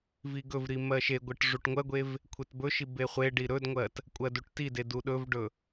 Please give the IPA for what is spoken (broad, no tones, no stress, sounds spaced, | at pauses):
v i ɡ ɵ v ɾ i m ɜ ʃ e ɡʷ ɜ ʈ ʐ u ʈ ŋʷ ɜ ɡʷ e v | kʷʰ e t b ɵ ʃ i b e χʷ e ɖ i ɾ ɵ d ŋʷ ɜ t | kʷʼ ɜ d u ʈ t i d e d u ɗ ɵ v ɖ ɵ